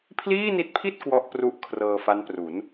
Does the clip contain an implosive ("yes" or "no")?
no